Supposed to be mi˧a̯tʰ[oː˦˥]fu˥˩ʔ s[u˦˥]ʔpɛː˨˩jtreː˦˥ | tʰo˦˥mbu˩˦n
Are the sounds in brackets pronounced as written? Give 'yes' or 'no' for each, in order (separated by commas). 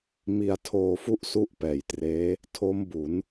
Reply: no, yes